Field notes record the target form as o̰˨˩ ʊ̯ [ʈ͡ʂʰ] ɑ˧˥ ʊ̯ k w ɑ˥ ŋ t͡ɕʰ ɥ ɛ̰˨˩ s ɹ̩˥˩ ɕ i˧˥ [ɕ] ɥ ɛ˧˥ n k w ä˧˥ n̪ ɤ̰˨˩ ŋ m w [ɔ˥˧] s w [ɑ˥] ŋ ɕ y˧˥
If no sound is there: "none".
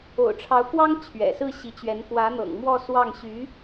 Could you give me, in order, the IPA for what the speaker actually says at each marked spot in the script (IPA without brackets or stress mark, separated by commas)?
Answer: ʈ͡ʂʰ, t͡ɕ, ɔ˥˧, ɑ˥˩